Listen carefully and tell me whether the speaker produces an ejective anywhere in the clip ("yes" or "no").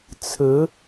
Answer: no